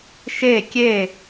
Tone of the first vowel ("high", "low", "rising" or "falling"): falling